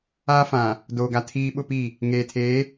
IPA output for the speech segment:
aː˦ f ã˨ | d oː˨ ɡ a˨ tʰ iː˦ ɓ ʊ˦ p i˦˨ | ŋ eː˨ tʰ eː˨˦

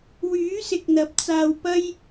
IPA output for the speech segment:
w yː˨˥ s ɪ˨ k̚ n̪ ɐ˨˥ p̚ t͡s aː˧ w p ɐ˥ j

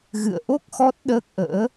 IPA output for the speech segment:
ɣ ɨ̰˧˨ ə̯ ʔ o˦˥ k̚ x ɔ˦˥ t̚ ɗ əː˦˥ k̚ ʔ ə̰ː˧˥

